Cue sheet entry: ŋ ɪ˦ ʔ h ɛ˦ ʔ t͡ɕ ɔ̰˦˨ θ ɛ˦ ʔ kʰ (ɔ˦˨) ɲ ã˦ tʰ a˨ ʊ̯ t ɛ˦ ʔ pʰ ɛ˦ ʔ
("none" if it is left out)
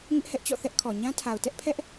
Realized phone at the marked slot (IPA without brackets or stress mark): ɔ˨